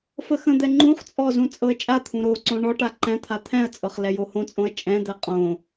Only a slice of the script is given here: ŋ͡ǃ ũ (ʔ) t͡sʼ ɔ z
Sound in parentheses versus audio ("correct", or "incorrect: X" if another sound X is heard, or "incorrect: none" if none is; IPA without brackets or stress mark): incorrect: χ